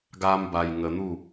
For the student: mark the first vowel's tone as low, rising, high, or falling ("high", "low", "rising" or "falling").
high